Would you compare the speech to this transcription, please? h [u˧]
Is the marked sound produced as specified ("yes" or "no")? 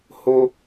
no